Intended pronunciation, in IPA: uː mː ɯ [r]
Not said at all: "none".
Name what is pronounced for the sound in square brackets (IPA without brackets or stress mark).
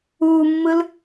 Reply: l